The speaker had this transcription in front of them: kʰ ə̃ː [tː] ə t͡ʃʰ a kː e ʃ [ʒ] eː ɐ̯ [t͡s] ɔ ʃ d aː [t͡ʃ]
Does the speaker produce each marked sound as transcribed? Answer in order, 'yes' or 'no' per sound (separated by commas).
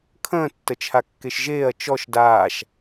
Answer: yes, yes, no, no